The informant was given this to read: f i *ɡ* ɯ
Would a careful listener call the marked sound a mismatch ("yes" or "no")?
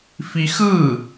yes